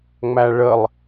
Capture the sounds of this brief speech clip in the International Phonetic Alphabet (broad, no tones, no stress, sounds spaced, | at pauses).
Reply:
ŋ͡m æ ɭ ə lˠ